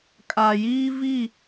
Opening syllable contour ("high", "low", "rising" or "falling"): low